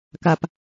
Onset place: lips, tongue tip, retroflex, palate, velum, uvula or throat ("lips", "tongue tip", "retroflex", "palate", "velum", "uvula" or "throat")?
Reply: velum